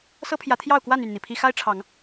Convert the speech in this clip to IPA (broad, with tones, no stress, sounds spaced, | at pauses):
s ɤ˦ pʰ j ä˨˦ t̪ʰ j ɑ˥˨ ʊ̯ k w a˥˨ n y˥˨ n n̪ i˩ pʰ i˦ x a˦ ɪ̯ ʈ͡ʂʰ ɑ˨˦ ŋ